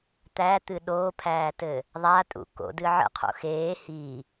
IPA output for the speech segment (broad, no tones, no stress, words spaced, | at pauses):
t̪æt̪ɨ ɗoːpʰæːtɘ | ðˤatʼṵ ko̰dɨ ʕə̰qʰo̰ xeː hi